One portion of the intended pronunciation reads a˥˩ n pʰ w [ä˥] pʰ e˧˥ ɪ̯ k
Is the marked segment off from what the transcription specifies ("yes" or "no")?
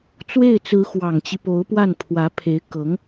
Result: yes